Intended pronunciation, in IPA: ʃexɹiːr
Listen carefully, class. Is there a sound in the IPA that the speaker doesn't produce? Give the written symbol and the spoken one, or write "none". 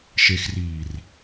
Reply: ɹ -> r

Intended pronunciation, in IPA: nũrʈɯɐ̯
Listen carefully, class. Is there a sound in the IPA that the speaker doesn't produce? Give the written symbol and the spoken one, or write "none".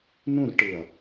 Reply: none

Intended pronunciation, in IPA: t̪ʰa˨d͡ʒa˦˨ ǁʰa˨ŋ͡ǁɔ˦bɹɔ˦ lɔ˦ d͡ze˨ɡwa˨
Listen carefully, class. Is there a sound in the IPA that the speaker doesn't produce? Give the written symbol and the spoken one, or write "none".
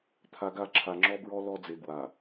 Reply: d͡ʒ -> ɡ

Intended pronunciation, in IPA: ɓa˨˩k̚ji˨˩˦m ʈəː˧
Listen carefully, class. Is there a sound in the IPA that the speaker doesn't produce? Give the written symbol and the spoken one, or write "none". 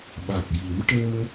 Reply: none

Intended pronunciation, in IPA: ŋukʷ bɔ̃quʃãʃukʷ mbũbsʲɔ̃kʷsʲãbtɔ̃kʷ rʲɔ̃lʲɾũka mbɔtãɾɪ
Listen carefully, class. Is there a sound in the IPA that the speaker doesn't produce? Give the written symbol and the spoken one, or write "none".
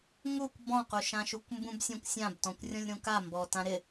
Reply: none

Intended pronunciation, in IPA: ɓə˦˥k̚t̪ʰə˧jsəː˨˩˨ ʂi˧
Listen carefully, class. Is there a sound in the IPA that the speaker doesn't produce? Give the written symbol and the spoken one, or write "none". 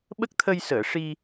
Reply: none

